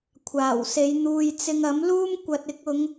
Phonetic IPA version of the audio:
kʷʰ aː˨˩ w s e˨˧ j n̪ uː˨ j t͡s ɪ˧ ŋ ɐ˨˥ m l uː˥ m kʷ ɐ˨ t̚ ɪ˧ k̚ ʊ˨˧ ŋ

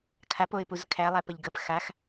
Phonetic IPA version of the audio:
kʰ a p o ɪ̯ p u z kʰ æ lˠ æ p ə ʎ ɡ ə p x a x

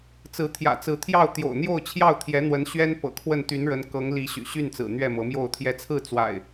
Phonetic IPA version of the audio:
t͡s ɹ̩˨˦ t̪ʰ j ä̰˨˩ t͡s ɹ̩˨˦ t̪ʰ j ɑ˥˨ ʊ̯ t̪ j o̰˨˩ ʊ̯ n̪ j o˥˨ ʊ̯ t͡ɕʰ j ɑ˥˨ ʊ̯ t̪ʰ j ɛ˨˦ n̪ w ə˨˦ n ɕ ɥ ɛ˦ n p ɤ̰˨˩ kʰ w ə˥˨ n t̪ y˨˦ n ɻ ə˨˦ n k ɤ˨˦ ŋ l i˨˦ ɕ y̰˨˩ ɕ y˥˨ n t͡s ɹ̩˨˩ n̪ ɥ ɛ˥˨ m ɤ˨˦ m j o˥˨ ʊ̯ t̪ʰ j ɛ˨˦ t͡sʰ ɹ̩˥˨ t͡s w a̰˨˩ ɪ̯

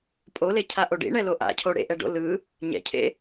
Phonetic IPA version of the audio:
pʼ o l e cʰ a ʔ o ɖ ḭ ɳ ɛ l o ʔ a̰ cʰ o ɽ ḛ ʔ ɛ ɖ o̰ l ɯ | ɲ ɛ̰ cʰ ḛ

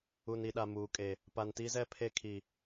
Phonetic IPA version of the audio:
u˨ n i˨ ɗ a˨ m uː˨ kʼ e˨ | p a˨ n t i˦ z ɛ˦ pʰ e˦ kʰ i˨

